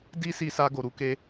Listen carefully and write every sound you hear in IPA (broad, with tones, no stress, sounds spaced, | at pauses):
d i˦ s i˧ s a˧ ɡ o˨ ɾ u˧ k e˧